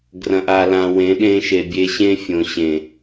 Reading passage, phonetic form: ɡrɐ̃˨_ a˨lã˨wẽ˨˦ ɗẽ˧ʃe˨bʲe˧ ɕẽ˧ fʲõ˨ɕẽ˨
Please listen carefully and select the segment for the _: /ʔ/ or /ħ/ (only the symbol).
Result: ʔ